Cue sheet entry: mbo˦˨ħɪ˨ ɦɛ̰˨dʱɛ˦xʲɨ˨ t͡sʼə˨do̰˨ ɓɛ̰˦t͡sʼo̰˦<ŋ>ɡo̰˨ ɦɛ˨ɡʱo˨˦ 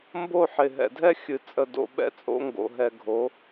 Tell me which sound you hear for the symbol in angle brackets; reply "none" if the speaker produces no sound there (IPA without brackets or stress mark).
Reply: ŋ